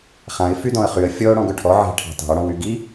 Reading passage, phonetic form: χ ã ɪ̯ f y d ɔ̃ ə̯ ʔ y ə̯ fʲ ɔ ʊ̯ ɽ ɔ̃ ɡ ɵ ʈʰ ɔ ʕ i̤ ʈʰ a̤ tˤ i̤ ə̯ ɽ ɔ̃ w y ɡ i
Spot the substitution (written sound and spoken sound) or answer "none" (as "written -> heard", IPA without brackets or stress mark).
ʔ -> χ